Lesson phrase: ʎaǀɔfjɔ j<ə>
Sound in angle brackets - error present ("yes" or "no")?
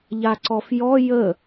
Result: no